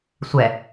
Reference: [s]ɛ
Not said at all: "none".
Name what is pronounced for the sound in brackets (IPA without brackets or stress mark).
sʷ